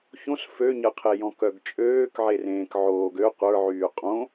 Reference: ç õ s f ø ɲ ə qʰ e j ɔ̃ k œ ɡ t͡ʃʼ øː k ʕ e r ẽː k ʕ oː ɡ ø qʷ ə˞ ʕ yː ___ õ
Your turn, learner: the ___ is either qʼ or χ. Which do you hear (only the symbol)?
qʼ